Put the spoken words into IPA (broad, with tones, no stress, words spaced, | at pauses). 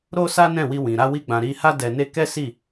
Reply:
ɾo˦sa˦nɛ̃˦˨wi˧ wĩ˨ɾa˧wi˧ ɡ͡bã˧ ɾi˧ha˦ dɛ˧ne˦ kɛ˦si˦˨